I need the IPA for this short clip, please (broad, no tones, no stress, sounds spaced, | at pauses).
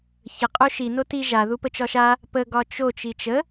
ç ə qʼ o ʃ i n o t i ʒ a ð u p ə t͡ʃ ɒ ʃ a | p ə ɡ ɒ t͡ʃ o t͡ʃ i t͡ʃ ə